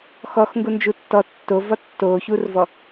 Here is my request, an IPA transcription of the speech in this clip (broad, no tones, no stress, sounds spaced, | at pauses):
x ɔ x ŋ ɡ u n d͡ʒ u tː ɔ tː o v ɒ tː o ç u r v ɔ